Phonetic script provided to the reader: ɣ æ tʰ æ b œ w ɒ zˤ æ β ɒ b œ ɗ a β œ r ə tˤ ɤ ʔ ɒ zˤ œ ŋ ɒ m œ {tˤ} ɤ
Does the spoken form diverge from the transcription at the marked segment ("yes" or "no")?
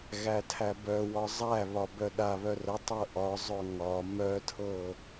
yes